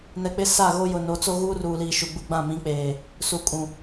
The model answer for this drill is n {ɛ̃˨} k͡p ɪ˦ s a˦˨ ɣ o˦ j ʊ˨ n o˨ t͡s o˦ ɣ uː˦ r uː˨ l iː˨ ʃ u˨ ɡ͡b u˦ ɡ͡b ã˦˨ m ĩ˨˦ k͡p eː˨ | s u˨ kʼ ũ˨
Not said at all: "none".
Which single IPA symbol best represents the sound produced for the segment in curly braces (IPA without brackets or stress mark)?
ɛ˨